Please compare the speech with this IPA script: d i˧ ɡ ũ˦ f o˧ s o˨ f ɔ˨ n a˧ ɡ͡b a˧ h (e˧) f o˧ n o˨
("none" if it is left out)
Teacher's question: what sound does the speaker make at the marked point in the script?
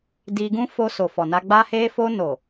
e˧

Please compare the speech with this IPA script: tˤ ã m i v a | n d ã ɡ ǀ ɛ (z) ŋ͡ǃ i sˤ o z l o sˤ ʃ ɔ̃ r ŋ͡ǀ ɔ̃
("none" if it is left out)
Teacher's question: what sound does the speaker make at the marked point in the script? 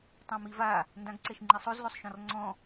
ʃ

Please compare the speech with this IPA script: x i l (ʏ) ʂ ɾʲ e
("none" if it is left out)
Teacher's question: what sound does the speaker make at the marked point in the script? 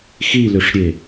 ʏ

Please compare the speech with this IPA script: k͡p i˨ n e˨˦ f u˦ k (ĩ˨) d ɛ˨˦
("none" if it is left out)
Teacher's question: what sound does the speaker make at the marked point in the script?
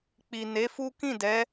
ĩ˦˨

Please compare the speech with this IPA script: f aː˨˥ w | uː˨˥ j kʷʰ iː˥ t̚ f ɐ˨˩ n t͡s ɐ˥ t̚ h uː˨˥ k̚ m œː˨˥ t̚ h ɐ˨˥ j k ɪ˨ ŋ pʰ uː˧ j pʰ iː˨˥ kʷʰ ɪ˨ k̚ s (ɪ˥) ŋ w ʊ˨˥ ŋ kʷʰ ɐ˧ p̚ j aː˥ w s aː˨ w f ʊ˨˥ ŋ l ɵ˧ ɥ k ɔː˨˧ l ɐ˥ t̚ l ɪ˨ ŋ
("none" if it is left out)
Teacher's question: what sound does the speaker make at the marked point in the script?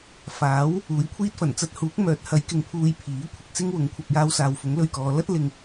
ɪ˥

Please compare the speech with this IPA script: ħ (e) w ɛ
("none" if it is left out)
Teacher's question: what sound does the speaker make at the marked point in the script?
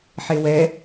e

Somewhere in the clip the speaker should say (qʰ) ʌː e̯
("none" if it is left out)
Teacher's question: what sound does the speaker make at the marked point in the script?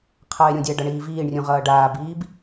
qʰ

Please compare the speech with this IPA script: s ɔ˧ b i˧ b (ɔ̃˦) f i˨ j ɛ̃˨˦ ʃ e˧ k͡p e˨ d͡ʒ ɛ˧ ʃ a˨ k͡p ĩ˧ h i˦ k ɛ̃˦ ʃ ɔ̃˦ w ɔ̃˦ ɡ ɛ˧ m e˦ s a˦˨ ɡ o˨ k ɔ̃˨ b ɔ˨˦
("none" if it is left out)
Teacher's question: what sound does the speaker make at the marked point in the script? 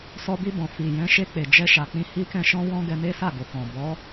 ɔ̃˨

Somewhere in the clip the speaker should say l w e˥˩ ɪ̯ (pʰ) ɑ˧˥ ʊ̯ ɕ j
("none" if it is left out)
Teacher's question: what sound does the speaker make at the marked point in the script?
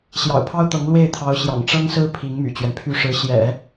t̪ʰ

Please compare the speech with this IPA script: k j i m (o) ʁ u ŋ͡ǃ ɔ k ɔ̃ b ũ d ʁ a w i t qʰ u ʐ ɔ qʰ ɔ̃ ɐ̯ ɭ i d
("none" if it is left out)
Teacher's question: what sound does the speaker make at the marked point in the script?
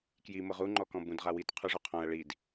ɤ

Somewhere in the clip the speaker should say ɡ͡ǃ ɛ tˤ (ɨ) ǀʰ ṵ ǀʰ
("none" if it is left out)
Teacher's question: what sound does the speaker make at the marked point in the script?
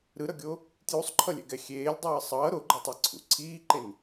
i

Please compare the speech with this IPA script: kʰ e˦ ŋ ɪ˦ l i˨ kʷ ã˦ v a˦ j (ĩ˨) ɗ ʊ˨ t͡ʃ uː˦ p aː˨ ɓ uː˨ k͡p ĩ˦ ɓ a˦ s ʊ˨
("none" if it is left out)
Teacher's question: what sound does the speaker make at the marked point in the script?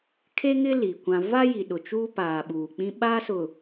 i˨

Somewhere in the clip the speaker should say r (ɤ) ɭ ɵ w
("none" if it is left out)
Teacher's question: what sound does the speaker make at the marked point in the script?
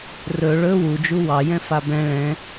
ɵ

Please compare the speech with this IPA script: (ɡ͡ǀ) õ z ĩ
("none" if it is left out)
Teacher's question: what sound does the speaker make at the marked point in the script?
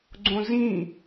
ɡ͡ǀ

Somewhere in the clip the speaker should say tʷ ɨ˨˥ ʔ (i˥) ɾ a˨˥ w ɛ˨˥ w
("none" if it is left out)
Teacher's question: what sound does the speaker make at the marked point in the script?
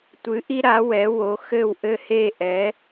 i˥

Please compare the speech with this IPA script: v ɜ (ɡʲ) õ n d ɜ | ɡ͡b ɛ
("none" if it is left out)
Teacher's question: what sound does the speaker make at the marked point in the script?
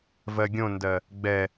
ɡʲ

